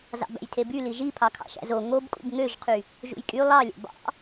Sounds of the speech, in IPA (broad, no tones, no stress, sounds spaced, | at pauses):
z ɑ̰ b æ̰ j tʰ e b y l i ʒ i pʰ ɑ kʰ ɑ̰ ʃ æ̰ z o ŋ o b kʼ ṵ b ŋ ø ʒ qʰ y | ʒ ṵ j kʼ y lˠ ɑ lʲ æ̰ b ɑ̰